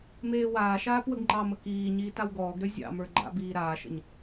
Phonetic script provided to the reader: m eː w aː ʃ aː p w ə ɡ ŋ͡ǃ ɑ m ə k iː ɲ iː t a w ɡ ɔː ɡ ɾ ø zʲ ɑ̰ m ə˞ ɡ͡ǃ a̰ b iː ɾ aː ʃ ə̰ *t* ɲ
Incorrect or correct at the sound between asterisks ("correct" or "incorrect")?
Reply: incorrect